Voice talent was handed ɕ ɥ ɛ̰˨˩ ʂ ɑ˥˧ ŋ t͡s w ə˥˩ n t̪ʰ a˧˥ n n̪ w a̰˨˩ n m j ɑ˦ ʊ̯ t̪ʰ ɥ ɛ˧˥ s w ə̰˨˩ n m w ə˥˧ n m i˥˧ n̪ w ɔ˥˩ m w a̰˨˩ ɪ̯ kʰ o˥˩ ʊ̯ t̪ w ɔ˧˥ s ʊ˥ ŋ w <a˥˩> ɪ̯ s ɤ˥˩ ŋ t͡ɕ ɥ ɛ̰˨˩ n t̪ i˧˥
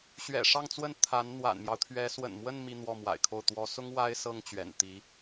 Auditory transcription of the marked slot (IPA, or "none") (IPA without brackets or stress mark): a˥